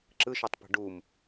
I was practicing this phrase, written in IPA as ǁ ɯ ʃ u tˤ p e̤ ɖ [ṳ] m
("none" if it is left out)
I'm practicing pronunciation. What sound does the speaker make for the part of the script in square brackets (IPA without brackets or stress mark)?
u